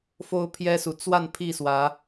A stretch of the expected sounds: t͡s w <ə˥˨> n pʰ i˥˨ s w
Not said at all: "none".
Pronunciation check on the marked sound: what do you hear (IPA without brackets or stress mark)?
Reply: a˥˨